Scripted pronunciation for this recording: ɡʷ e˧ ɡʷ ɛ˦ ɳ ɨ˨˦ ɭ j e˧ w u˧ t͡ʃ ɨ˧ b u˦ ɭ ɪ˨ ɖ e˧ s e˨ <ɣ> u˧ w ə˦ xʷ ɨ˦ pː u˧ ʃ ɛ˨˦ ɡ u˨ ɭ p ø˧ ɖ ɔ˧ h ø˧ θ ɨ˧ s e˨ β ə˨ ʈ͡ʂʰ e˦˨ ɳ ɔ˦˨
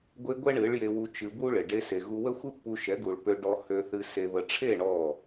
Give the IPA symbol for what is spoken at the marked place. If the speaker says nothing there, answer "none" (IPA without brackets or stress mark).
ɣ